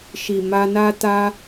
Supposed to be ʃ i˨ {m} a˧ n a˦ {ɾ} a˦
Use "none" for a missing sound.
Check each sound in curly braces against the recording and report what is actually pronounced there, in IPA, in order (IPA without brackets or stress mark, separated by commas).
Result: m, t